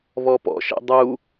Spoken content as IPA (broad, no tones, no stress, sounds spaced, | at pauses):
β ɔ p ɔ̰ ʃ ḛ dˤ u